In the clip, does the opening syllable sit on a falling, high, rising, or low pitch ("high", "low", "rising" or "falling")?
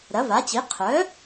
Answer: rising